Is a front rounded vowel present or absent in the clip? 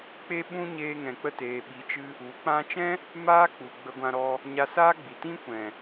absent